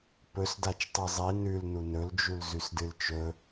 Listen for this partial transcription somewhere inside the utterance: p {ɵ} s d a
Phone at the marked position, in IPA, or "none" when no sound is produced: ɵ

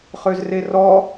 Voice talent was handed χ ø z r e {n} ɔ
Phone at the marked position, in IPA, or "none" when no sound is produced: r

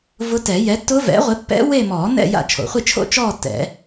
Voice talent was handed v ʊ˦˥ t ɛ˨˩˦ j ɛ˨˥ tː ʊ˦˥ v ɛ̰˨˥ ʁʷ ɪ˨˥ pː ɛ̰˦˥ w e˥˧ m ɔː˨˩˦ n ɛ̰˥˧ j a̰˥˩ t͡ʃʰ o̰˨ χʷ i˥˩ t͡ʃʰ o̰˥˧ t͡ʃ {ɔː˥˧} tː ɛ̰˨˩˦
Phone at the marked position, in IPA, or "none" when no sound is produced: ɔː˥˧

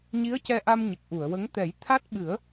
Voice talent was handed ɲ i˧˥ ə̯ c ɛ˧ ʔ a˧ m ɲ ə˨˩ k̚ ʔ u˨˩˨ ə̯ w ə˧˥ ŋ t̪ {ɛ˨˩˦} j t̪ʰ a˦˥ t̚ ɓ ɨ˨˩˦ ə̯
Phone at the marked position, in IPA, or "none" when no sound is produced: ɛ˨˩˦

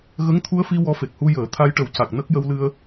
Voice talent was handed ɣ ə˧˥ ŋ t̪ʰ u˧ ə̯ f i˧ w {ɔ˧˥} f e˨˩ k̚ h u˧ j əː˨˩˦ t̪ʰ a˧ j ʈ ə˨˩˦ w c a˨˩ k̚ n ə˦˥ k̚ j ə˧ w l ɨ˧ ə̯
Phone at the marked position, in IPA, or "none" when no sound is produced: ɔ˧˥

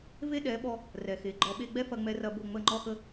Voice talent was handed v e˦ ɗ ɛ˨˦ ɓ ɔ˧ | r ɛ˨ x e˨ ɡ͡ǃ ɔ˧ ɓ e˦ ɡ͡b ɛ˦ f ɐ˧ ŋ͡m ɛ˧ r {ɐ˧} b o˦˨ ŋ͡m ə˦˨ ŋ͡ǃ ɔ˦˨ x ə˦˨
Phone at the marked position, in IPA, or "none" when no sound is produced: ɐ˧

